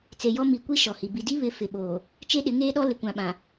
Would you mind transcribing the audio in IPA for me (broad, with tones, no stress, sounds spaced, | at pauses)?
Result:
t͡s e˨ j ɔ˦ m i˨ kʷ i˦ ʃ ɔ˨ h i˨ b i˨ d i˦ β ɪ˦ f ɪ˨ ɓ oː˨ | t͡ʃ e˦ ɗ ɪ˨˦ ŋ eː˦ ɗ ɔ˦ l ɪ˨ kʷ ã˨ ɓ ã˨